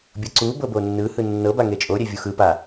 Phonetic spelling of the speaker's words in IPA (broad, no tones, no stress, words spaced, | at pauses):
bʲɤǀu bɤbonːɯ hɯnːɤ baŋet͡ʃʼo ɾʲevʲuxɯ pa